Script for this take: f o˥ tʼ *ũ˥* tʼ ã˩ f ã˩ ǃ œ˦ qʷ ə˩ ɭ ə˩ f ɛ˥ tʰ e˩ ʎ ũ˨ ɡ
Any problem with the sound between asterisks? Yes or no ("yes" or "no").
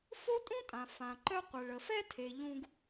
no